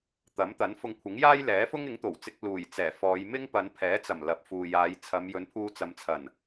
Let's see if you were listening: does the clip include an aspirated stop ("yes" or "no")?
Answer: yes